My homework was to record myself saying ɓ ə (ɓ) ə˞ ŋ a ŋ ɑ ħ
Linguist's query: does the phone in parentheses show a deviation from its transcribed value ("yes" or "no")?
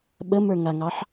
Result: yes